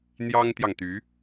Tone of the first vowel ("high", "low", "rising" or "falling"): high